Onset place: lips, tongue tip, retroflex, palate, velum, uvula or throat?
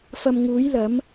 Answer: lips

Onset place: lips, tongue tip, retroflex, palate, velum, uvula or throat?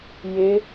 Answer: palate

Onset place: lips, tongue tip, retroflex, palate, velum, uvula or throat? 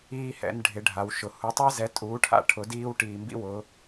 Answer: throat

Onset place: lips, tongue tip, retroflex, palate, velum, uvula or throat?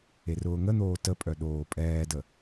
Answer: tongue tip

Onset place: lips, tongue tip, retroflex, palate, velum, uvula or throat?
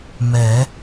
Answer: lips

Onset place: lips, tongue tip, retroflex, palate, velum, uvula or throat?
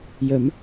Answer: palate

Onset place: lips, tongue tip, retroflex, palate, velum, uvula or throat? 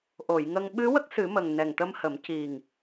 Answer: throat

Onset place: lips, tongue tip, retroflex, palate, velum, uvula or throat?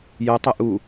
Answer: palate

